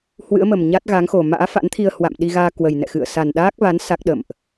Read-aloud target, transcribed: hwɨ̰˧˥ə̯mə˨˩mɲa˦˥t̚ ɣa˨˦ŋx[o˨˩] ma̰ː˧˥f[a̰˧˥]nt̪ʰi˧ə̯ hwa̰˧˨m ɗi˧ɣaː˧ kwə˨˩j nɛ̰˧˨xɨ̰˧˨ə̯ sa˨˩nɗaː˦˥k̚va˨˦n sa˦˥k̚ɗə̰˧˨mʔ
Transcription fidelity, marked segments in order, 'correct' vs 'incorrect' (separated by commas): correct, correct